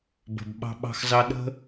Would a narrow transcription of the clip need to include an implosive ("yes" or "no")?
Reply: yes